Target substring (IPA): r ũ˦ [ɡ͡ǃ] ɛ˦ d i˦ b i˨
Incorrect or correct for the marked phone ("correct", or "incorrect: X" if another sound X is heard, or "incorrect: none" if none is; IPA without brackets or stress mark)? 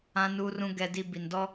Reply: incorrect: ɡ